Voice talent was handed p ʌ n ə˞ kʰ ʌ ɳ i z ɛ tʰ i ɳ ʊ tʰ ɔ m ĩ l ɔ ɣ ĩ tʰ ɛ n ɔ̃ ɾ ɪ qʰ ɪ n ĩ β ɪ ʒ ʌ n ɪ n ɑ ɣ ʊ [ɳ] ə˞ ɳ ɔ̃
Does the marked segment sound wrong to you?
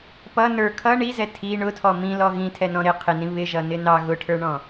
yes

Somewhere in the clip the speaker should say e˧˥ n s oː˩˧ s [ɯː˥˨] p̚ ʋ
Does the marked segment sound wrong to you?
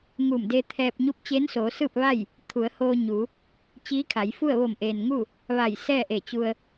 no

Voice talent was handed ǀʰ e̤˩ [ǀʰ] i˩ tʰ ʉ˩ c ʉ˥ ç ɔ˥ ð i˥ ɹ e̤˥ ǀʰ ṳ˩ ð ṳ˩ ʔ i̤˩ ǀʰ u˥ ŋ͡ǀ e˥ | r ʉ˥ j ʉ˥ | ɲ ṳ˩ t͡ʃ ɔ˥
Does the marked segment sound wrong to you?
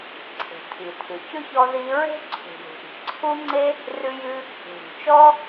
yes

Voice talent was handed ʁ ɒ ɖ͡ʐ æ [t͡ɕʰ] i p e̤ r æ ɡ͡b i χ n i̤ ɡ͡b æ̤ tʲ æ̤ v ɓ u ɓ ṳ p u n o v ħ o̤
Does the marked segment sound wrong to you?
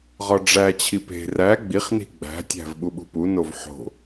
no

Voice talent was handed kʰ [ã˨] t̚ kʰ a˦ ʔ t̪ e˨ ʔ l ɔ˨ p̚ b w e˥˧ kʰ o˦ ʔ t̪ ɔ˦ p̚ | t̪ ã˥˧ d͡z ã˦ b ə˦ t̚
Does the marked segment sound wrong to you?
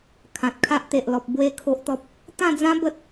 no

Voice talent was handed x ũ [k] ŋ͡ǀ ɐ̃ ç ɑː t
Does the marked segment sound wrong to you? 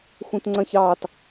yes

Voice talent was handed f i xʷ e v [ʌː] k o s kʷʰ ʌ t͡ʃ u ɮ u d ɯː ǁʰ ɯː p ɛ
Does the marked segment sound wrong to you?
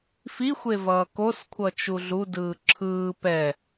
no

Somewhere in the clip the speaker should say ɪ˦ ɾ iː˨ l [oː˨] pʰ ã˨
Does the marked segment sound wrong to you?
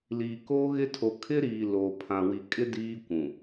no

